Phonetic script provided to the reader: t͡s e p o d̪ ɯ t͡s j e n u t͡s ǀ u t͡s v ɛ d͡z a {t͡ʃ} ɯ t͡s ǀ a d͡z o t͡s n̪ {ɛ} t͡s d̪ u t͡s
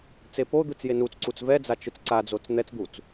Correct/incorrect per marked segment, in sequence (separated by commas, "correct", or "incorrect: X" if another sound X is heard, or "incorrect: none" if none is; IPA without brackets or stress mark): correct, correct